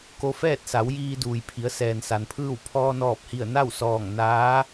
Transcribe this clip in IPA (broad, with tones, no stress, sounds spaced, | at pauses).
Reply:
k o˧ f ɛː˥˨ t̚ s a˩˧ w j iː˧ d uː˩ j pʰ i˩˧ ə̯ s ɛː˩ n s a˩ n pʰ ɯː˥˨ w pʰ ɔː˧ n ɔː˧˩ p̚ h i˧˩ ə̯ n a˥˨ w s ɔː˧˩ ŋ n aː˧˥